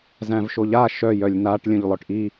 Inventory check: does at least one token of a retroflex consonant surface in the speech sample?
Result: yes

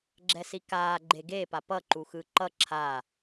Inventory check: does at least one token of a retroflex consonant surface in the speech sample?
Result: no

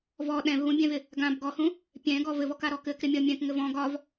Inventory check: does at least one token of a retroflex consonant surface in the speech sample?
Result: no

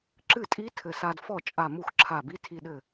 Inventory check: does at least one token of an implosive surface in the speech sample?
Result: yes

